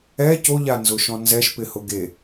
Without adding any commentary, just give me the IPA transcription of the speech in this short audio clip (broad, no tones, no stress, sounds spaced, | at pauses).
ɛ c o ʎ a n z ʊ ʃ ɔ̃ n z ɛ ʃ p ɪ h ʊ ɡ e